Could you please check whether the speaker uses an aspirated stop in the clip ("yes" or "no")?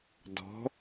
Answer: no